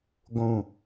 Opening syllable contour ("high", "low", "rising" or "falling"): low